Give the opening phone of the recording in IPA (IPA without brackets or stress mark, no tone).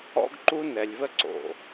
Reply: ɔ̰